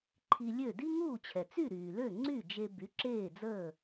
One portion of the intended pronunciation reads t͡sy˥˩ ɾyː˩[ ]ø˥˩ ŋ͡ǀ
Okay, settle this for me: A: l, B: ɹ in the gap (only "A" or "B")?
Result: A